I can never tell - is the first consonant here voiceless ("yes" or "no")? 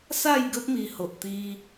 yes